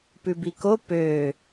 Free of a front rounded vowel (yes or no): no